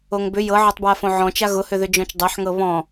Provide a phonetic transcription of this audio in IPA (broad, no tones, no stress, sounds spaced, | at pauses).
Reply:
o ŋ b ʏ j ɤ ʕ ɤ tˤ b w a f õ ʕ ɔ̃ t͡ʃ a ɣ ʊ h ʏ ð ʏ d͡ʒ ɔ̃ t͡ʃ dˤ ɤ ħ ŋ ɤ β ɔ̃